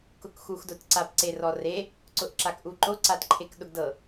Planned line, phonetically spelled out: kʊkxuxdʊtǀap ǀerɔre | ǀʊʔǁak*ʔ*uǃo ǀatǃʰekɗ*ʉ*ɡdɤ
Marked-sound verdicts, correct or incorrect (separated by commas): correct, incorrect